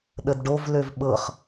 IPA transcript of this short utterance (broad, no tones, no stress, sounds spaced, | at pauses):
ɗ ə d ɖ o v l ø v ɓ ɤ χ